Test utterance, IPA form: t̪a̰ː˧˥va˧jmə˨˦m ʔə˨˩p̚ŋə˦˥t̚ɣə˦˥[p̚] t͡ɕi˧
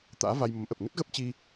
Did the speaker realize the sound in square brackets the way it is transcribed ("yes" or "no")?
yes